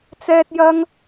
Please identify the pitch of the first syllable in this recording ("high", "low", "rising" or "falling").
high